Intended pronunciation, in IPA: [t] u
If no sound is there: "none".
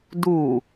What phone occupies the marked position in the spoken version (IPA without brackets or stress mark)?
d